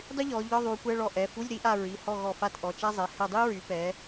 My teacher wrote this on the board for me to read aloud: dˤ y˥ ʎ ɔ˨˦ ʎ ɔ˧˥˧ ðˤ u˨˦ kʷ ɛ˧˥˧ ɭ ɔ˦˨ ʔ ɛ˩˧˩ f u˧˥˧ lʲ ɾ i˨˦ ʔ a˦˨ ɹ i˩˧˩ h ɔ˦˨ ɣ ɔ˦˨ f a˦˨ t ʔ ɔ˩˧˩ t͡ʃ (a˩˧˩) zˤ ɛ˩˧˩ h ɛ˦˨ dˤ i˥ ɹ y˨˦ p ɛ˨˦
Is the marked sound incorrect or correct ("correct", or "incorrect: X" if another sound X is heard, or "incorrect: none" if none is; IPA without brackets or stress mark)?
incorrect: a˥